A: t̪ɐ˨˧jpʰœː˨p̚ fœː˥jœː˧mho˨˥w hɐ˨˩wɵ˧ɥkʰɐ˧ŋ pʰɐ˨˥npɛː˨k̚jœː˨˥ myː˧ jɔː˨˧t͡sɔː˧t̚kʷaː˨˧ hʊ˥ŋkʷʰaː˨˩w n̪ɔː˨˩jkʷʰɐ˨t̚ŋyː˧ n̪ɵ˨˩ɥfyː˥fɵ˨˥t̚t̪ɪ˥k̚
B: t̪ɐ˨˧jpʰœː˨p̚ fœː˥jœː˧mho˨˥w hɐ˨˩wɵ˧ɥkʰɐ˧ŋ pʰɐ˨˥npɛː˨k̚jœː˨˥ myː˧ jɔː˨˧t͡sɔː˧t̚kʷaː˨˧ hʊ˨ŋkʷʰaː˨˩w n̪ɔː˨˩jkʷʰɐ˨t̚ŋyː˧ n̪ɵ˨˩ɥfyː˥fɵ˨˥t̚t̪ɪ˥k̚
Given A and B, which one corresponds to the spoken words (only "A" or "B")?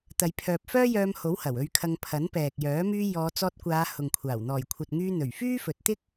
B